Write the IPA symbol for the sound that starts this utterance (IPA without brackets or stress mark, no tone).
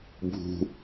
bʱ